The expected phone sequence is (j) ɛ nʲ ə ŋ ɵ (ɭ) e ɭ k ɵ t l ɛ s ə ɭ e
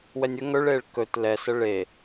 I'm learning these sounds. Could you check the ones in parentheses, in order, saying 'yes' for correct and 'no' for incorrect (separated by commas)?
no, yes